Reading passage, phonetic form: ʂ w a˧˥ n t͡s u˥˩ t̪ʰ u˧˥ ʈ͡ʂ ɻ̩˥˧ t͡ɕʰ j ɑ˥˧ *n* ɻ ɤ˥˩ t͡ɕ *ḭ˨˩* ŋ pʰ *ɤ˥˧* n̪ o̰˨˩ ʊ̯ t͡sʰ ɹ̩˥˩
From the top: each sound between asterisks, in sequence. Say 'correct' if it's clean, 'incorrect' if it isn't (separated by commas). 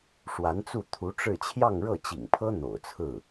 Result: incorrect, correct, incorrect